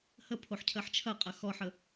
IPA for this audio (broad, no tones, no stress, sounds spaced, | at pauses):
h ə pʰ o ħ cʰ ɜ ħ t͡ʃʰ ɐ qʼ ɐ x ɔ ħ ə